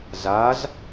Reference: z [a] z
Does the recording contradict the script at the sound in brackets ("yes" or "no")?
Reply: no